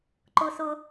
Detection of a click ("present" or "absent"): present